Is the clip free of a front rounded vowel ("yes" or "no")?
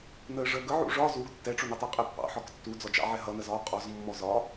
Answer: yes